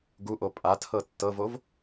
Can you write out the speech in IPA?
ɡ u ʔ o pʼ a tʰ ɤ tː ɤ v o v

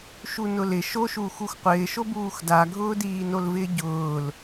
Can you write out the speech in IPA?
ʃ u n ʊ l ɪ ʃ o ʃ uː x u x qʷ ɪː ʃ o b uː x d a ɡʱ ʊː d iː n o l v ɪː ɟ ʊː l

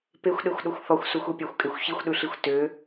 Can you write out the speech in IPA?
p e xʷ ɗ e xʷ ɗ o xʷ θ ɔ xʷ s u xʷ e pʲ ɑ xʷ kʼ e xʷ ç i xʷ ɗ ʉ ɬ i xʷ t ø

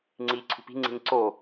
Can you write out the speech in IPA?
ŋ͡ǀ iː ǀʰ ṳ p i̤ ŋ͡ǀ i̤ ɲ ǀ o

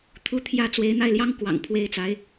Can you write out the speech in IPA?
t̪ʰ u˧˥ t̪ʰ j ä˧˥ t͡s w e˧˥ ɪ̯ n̪ a˥˩ ɪ̯ l j ɑ˥ ŋ k w ɑ̰˨˩ ŋ pʰ w e˥ ɪ̯ t͡s a˧˥ ɪ̯

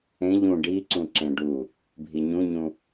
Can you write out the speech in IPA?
ẽ ʎ ũ ɖ i ǀ ũ ǁ ẽ ɖ u | bʱ i ɲ ũ ɲ ũ

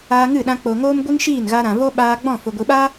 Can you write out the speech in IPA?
aː˧ ŋ ɨ˦˨ ɗ ã˧ k͡p o˨ ŋ oː˦ m ɡʷ i˦ ŋ ʃ iː˦˨ n ɣ a˧ ɾ ã˨ v o˦ ɓ aː˧ ɡ͡b ɔ̃˦˨ f o˨ ɡʷ i˨ ɓ a˦

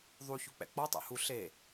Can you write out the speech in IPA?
ðˤ u ç u k͡p ɛ̰ k͡p ɔ tˤ ɛ̰ h u ɬ e

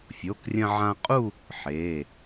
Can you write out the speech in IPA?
fʲ o˩˧˩ k rʲ ɐ̃˧ ʕ ã˧ qʼ u˥˧ | ħ e˩˧˩

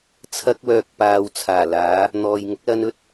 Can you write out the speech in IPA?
t͡sʰ ɐ˥ k̚ w œː˧ k̚ p aː˧ w t͡sʰ aː˨˩ l aː˨˥ | n̪ ɔː˨ j ŋ ʊ˨˥ k̚ l ɐ˧ n ɵ˥ t̚

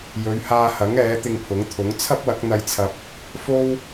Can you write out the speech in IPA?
j ɵ˨˧ ɥ h aː˧ h ɐ˨˥ ŋ ɛː˨˥ t̪ ɪ˧ ŋ pʰ ʊ˨˥ ŋ t̪ʰ ʊ˨˥ ŋ t͡sʰ ɐ˥ p̚ w ɐ˨˥ k̚ n̪ ɐ˧ j t͡sʰ ɐ˧ p̚ | f o˥ w

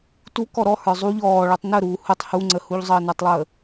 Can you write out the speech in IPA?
t u k ɔ ɾ ɔ h ə˞ zˤ u ʎ ɔː ɭ u tˤ n ə ɾ uː h u tˤ h u ŋ͡ǀ ə h u ʎ zˤ əː n ə˞ tˤ lˠ əː

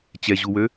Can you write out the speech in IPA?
t͡ɕ ɛ ʑ u w ø

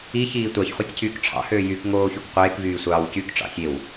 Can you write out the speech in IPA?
i ç iː tʷ ɑ ç χʷ ɑ tʲ cʰ yː k ʈ͡ʂʰ ɑ̰ h øː j y k ŋ oː ç o k qʷ eː k v yː sʷ ɑː w c y k ʈ͡ʂ ɑ̰ sʲ e w

